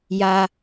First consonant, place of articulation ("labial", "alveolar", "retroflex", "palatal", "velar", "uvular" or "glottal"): palatal